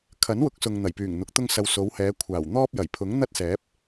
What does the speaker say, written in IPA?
kʰ ɐ˨˥ n w ʊ˨˥ k̚ s ʊ˨ ŋ n̪ ɐ˨˩ j p yː˨˩ ŋ n̪ ʊ˨˥ k̚ t̪ ʊ˥ ŋ s ɐ˧ w s o˨˧ w h ɛː˨˧ kʷʰ aː˨˩ w n̪ ɔː˥ p̚ j ɐ˨˩ j pʰ ʊ˨˥ ŋ n̪ ɐ˥ t̚ s ɛː˨˥ p̚

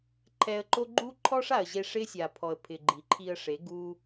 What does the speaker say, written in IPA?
ǃʰ ɛ˧ ə̯ ǃ o˦ ɡ͡ǃ u˦ ǃʰ ɔ˦ ʂ a˨ ə̯ ʑ e˧ ʂ ɪ˦ sʲ a˨ pʰ ɔ˨ ə̯ pʰ ɪ˨ ɡ͡ǃ i˨ ǃʰ i˧ ə̯ ʂ e˨˦ ɡ u˦

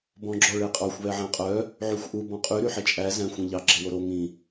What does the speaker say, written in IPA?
b ɔ̃ ɡ͡ǁ ɔ ɭ e qʼ ɑ xʷ β ɛ ʕ æ̃ qʼ œ | ʕ y xʷ ʔ u b ɔ̃ qʼ y ɾ y ħ e t͡ʃʼ æ z æ̃ xʷ ĩ ʎ ɑ ɡ͡ǁ e w o ɾ o ŋ ĩ

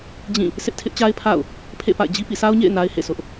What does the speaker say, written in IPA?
d͡ʑ ĩ˦˨ | s ɪ˦ ʔ tʰ ɪ˦ ʔ t͡ɕ a˦ ɪ̯ pʰ a̰˦˨ ʊ̯ | pʰ ḛ˦˨ p a̰˦˨ ɪ̯ d͡ʑ i˦ p ḭ˦˨ s a˦ ʊ̯ ɲ ḛ˦˨ ɪ̯ n a˦ ɪ̯ h ḛ˦˨ s ʊ˦ ʔ

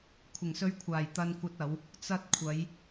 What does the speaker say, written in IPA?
kʷʰ ɪ˨˩ ŋ s ɵ˧ ɥ kʷʰ aː˨˩ j t̪ ɐ˧ n kʷ ɐ˧ t̚ ɐ˨˧ w | t͡s ɐ˧ t̚ kʷʰ ɐ˨˧ j

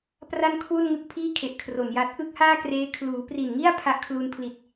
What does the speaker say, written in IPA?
p r a˥˩ n kʰ w u˥˩ n ŋ ɯ˦˥ k̚ pʰ iː˥˩ kʰ e˨˩ ʔ kʰ r o˨˩ n j a˦˥ t̚ ʔ ɯ˥˩ k̚ h aː˥˩ k r eː˦˥ kʰ l uː˩˦ p r i˨˩ n ŋ i˥˩ a̯ pʰ a˦˥ ʔ kʰ l u˧ n pʰ l i˨˩ t̚

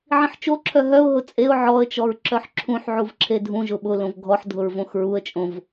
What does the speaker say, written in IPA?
ʕ ĩ ħ t͡ʃ o ǁʰ œ ɦ œ ʊ̯ ɦ ʊ t͡sʼ e ʊ̯ ʕ ɔ ə̯ t͡ʃ ɔ ɹ ǁ œ ħ ǁʰ ũ ħ ʕ u v ǁʰ e dʱ ũ ʒ ʊ ɓ ʊ l õ v ɡʱ ɔ ħ dʱ ʊ ɹ v õ x ɹ u ə̯ t͡ʃʼ õ v

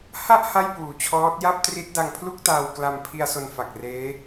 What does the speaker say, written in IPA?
h a˥˩ ʔ h a˥˩ j p uː˩˦ t͡ɕʰ ɔː˦˥ t̚ j a˥˩ p̚ t r i˦˥ t̚ d a˧ ŋ pʰ l u˥˩ k̚ t aː˧ w k l a˧ m pʰ i˧ a̯ s o˧ n f a˨˩ k̚ r eː˦˥

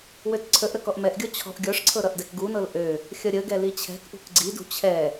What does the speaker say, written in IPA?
w ø t ǀʰ ə ʔ ɾ ə k ɔ ʔ m ɛ ʔ ɡʲ ɔ t͡ɕʰ ɔ̤ ʔ ɡʲ ɔ ʂ ǀʰ ɤ ɾ ʌ ʔ d ɛ k ɡ u n ɤ l ʔ ø | xʲ ʌ ɾʲ ə ɡ ɛ l i t͡ɕʰ ɛ̤ k ʔ ṳ k ɡ͡ǀ i d ṳ t͡ɕʰ ɛ

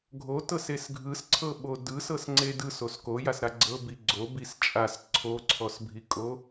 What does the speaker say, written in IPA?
ɡʱ o t ɤ s e s ɡʱ ɯ s ǀʰ ɤ ɓ o d ɯ s ɤ s ŋ͡ǀ e d ɯ s o s k o j a s ɾ a ɡ͡ǀ ɤ b i ɡ͡ǀ o b i s t͡ʃʼ a s ǀʰ o ǀʰ ɔ s bʱ i kʼ o

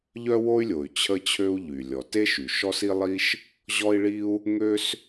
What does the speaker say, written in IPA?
ʎ œ˥ w o˥ y̯ lʲ o˩ y̯ t͡ɕʰ ə˥ t͡ɕʰ ø˥ u̯ ʎ y˩ lʲ ɔ˩ t e˥ ʃ y˩ ʃ ɔ˥ s i˥ lˠ i˥ ʃ | ʑ ɔ˥ i̯ ɭ i˥ u̯ | ŋ ø˥ s

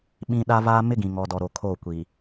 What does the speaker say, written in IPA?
ɓ ĩ˦ ɗ a˦ v aː˦ m ɪ˦ ɡ ĩ˨ ŋ ɔ˨ d ɔ˨ ɾ o˨ kʰ o˦˨ kʷ i˨

